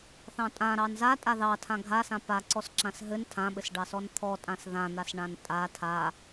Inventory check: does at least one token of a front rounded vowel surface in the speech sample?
no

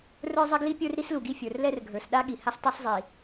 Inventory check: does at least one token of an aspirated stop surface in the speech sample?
no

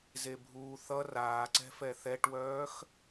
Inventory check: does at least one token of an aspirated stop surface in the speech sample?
no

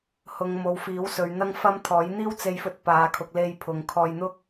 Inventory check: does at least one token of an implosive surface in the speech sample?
no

